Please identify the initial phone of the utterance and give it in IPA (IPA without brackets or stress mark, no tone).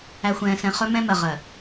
æ